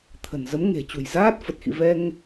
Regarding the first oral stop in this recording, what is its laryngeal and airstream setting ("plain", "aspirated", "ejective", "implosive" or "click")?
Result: aspirated